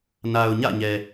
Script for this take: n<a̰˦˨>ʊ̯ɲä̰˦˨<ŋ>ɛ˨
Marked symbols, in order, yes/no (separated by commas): no, no